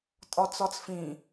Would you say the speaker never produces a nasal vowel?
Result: no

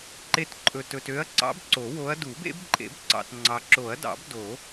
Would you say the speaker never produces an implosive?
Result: yes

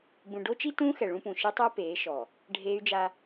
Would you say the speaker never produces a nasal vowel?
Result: no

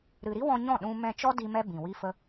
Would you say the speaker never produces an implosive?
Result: no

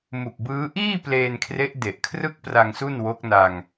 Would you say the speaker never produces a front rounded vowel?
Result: yes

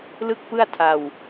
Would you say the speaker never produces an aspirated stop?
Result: no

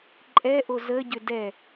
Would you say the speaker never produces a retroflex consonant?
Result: yes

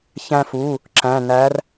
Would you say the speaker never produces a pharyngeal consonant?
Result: yes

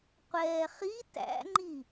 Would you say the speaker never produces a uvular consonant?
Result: no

